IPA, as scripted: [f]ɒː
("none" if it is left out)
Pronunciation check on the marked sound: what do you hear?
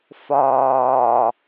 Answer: f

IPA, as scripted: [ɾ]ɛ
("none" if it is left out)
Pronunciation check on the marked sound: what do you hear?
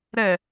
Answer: ɾ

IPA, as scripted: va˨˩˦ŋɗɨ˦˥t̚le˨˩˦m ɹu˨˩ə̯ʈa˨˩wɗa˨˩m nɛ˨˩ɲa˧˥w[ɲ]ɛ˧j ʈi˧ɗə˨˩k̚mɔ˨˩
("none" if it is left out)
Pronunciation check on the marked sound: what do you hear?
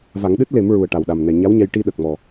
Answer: ɲ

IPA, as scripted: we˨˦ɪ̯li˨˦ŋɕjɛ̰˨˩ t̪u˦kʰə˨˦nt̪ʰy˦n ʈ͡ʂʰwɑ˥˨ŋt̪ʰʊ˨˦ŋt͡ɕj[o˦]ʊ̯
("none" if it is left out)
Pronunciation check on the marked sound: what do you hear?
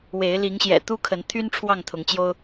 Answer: o˦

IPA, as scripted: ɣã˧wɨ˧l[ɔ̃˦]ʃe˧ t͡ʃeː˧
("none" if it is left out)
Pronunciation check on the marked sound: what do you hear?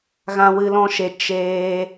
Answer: ɔ̃˦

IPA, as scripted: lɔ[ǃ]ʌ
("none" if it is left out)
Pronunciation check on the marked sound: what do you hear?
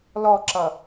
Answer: ǁ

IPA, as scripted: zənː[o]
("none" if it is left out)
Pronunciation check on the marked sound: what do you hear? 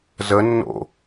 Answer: o̰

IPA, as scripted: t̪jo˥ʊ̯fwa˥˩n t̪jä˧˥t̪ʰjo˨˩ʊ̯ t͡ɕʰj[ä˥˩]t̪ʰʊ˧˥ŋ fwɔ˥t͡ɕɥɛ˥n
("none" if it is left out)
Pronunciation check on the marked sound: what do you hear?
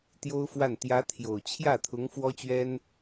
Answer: ä˥˩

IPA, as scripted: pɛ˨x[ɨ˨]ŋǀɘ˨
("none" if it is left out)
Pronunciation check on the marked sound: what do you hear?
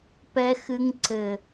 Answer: ɨ˨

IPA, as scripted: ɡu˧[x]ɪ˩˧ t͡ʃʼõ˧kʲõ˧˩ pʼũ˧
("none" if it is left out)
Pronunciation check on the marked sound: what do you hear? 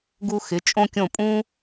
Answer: x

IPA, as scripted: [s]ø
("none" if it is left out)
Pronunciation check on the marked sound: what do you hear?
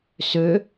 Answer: s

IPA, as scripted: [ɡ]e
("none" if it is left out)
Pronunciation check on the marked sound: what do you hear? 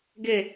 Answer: ɡ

